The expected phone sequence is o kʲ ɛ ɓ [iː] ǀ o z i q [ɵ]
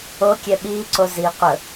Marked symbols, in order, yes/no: yes, yes

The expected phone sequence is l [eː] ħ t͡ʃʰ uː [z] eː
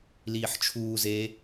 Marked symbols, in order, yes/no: no, yes

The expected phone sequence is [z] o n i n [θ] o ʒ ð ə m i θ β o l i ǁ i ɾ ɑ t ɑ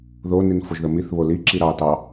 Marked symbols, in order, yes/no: no, no

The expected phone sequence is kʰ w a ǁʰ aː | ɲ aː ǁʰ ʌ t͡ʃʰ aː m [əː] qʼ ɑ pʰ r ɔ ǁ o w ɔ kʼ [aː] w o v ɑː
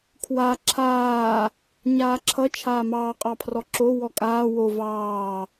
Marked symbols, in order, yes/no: no, yes

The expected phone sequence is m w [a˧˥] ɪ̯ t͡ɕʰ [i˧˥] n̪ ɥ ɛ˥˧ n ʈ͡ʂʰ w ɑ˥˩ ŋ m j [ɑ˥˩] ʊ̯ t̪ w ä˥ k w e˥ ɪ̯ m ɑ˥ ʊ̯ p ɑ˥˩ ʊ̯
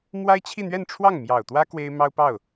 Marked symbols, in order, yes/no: no, no, no

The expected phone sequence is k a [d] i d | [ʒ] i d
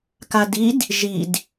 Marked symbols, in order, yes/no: yes, yes

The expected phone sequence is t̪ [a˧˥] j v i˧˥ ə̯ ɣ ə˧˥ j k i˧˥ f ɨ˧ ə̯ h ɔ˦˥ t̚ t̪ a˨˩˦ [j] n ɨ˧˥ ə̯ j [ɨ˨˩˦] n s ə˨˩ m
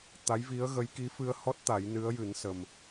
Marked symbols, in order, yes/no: yes, yes, yes

